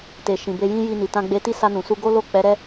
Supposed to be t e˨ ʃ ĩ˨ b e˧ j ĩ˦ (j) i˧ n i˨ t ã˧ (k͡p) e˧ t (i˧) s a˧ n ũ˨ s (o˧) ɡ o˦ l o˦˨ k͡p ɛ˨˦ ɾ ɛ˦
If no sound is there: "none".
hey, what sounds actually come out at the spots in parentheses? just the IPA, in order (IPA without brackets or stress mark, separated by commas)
j, ɡ͡b, i˦, u˧